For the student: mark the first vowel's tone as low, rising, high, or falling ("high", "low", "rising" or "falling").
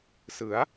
rising